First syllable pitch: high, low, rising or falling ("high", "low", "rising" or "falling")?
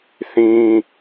high